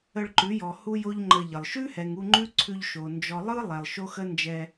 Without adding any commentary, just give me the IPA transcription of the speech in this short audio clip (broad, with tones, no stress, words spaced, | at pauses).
ə˧ɭǃʉ˨˦jɔ˨ hu˦jo˦ʎŋ͡ǃə˧ʎə˨lˠ ʃʉ˦hɛ˨ŋu˧ ŋ͡ǃʉ˦ǀʰʉ˧ʎʃo˨ nd͡ʒɔ˦ lˠɯ˦ lˠɛ˨lˠ ʃo˦xə˦ nd͡ʒɛ˧